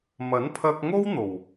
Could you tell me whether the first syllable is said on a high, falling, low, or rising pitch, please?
rising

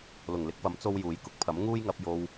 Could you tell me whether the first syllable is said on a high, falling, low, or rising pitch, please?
low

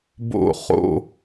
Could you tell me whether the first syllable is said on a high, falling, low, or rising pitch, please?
falling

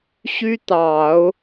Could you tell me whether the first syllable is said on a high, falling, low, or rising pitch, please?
high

